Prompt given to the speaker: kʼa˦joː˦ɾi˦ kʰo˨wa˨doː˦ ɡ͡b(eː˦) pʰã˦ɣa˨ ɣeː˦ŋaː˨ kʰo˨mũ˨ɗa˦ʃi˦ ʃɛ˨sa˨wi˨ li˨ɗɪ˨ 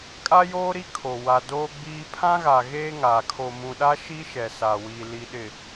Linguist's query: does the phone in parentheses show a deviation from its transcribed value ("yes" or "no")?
yes